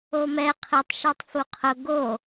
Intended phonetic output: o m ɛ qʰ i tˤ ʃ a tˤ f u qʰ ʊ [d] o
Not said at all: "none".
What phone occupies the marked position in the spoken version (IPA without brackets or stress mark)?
ɡ